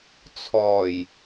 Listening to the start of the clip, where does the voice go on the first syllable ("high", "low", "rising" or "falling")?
low